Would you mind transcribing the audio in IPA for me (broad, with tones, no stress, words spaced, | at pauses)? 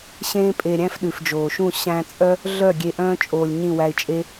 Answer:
ɕẽː˦ pʼe˧ɾʲæ̃˦f ɗʉ˨fd͡ʒoː˨ʃũ˦˨ ɕæ̃˧ t͡sʼœ˦ | ɮœ˦˨ ɡʲe˧ʔœ̃ː˦ t͡ʃʼoː˧lʲɲĩ˦˨wæ˧ɪ̯t͡ʃʼe˦